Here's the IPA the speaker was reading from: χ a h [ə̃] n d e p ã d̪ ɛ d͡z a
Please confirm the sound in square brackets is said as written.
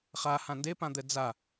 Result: no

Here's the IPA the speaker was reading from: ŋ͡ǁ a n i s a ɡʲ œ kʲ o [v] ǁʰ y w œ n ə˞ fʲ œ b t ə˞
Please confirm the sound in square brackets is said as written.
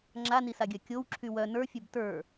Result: no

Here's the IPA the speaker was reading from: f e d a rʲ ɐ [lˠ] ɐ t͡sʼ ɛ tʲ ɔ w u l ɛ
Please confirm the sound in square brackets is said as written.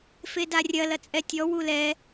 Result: no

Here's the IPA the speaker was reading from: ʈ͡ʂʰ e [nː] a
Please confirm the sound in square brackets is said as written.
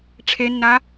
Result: yes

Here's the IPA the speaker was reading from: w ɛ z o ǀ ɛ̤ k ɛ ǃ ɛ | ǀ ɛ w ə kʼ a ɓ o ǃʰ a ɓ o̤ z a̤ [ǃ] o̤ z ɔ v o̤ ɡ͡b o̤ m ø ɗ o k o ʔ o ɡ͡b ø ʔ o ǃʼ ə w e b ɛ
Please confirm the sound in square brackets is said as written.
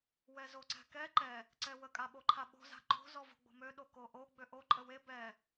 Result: yes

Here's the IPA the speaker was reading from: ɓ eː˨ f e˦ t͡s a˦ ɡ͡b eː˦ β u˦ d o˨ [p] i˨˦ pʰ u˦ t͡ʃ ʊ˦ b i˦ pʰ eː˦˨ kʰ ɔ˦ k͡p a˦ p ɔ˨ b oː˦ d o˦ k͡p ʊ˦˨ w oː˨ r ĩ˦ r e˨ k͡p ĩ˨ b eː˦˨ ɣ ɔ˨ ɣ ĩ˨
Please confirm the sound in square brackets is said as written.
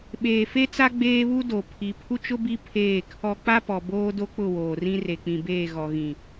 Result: no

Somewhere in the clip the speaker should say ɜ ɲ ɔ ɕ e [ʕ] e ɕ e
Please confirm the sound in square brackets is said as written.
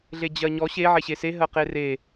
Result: yes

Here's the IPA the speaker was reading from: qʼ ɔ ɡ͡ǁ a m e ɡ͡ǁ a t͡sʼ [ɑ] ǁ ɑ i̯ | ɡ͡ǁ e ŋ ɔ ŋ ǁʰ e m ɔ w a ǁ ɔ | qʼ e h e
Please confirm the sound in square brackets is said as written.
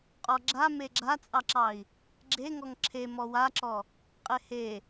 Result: yes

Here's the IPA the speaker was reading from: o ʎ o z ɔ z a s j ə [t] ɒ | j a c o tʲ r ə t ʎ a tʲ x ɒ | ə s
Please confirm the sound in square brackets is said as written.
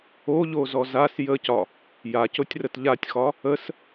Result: no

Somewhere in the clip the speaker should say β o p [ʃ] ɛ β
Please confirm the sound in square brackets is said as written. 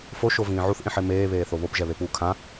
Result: no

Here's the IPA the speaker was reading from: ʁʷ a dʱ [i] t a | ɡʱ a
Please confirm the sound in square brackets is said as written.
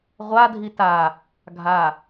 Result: yes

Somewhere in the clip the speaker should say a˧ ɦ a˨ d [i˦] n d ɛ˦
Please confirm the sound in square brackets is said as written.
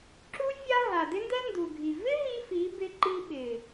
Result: no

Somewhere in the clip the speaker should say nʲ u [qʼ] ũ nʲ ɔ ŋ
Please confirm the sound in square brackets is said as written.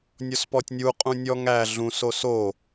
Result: yes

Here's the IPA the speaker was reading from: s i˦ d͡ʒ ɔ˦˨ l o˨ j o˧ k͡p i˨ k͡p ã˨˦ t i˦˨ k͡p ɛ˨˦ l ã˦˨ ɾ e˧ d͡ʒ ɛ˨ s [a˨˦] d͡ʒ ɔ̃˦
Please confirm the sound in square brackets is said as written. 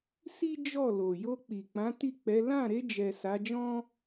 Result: yes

